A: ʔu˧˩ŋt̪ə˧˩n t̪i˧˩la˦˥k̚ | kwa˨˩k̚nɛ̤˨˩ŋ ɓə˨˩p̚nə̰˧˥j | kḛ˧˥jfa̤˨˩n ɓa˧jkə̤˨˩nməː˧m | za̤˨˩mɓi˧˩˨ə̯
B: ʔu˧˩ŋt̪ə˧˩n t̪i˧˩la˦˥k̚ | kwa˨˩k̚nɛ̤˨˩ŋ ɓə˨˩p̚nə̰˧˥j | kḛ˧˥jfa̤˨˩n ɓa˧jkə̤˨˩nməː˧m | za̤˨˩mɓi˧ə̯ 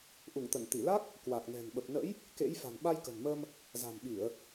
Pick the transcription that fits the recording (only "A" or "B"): A